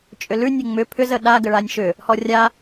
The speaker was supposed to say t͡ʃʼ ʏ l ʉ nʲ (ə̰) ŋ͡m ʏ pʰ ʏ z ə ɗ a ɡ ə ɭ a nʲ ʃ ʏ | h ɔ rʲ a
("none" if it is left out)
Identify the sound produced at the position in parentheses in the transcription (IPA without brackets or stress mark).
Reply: ə